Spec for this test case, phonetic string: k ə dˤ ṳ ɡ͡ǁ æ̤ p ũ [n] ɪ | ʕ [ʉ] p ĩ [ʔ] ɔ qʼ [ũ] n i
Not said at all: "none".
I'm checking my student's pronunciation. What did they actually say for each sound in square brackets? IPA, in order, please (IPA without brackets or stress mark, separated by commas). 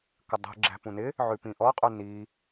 n, ʉ, ʔ, u